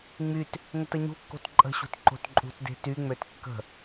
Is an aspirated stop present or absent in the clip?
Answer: absent